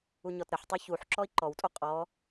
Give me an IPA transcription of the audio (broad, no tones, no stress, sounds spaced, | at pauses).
u ɲ ɔ t ɾ ə ħ tˤ o ç u ħ ǁ ɔ i̯ ǃ ɔ w tʼ o qʼ ɔ